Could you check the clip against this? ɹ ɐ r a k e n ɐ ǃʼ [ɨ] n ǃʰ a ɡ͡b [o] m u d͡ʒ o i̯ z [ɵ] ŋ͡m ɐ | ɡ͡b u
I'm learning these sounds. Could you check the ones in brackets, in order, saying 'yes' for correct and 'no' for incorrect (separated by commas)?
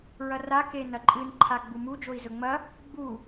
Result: yes, no, yes